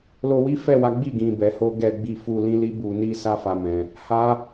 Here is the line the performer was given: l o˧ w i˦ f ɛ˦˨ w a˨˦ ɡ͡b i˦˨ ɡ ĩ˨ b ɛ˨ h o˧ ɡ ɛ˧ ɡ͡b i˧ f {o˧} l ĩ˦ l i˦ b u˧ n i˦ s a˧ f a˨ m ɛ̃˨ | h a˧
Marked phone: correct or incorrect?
incorrect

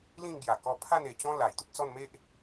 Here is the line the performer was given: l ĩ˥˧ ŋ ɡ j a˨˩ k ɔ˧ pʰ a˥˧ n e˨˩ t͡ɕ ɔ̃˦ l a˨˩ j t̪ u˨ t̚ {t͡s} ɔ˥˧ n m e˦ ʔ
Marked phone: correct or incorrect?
correct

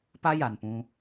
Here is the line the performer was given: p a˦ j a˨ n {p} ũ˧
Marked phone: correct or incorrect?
correct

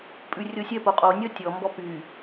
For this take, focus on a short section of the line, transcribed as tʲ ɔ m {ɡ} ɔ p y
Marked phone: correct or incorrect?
incorrect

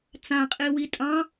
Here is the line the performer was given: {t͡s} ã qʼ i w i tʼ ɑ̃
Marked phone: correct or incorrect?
correct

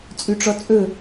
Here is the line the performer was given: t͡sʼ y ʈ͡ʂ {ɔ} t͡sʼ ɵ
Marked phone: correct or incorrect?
correct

